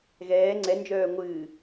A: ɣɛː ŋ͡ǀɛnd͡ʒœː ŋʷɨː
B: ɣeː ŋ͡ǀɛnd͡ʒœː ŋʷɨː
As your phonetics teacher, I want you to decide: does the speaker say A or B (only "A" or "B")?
A